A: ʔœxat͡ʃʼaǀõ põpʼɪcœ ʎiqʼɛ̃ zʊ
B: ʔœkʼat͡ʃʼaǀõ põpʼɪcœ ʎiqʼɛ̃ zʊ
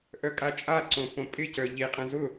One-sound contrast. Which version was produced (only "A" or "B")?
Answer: B